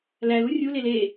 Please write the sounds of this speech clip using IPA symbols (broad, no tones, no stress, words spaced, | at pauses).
lælu rʲulel e